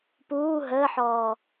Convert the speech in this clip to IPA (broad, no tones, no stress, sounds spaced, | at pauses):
p uː ɦ əː ħ ɔː